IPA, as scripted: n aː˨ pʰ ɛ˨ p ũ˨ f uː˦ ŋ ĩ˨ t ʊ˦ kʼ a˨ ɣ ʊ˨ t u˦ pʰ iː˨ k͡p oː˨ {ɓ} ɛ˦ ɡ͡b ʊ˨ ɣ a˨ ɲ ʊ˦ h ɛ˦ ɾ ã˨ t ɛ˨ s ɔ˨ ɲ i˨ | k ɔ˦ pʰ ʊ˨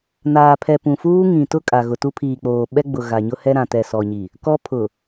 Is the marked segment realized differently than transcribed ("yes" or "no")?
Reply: no